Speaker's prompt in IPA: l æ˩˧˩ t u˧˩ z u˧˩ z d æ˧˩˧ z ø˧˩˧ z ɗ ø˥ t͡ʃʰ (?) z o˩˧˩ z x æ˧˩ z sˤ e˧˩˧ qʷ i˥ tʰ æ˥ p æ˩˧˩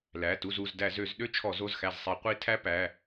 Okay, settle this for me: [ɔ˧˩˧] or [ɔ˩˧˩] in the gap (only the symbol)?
ɔ˧˩˧